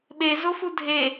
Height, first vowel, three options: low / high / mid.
mid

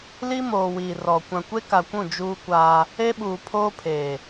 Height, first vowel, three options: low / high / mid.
high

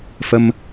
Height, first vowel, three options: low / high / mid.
mid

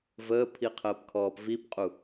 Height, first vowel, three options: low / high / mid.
mid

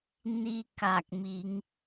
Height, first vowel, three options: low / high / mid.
high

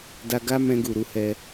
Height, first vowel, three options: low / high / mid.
low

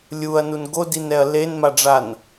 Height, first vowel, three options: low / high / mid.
high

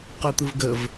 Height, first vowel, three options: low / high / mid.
high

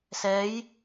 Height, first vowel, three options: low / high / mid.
mid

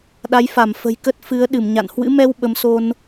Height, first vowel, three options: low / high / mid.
low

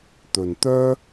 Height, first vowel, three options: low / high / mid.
mid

